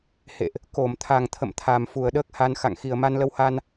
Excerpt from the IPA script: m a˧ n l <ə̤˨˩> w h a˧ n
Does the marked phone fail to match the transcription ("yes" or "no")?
yes